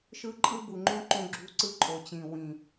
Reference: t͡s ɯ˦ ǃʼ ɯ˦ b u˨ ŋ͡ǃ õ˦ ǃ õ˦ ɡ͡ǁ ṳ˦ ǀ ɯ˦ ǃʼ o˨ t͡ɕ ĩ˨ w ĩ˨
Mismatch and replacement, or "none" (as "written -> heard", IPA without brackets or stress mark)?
t͡s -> ʃ